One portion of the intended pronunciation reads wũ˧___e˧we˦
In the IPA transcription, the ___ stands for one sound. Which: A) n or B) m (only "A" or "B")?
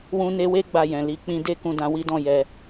A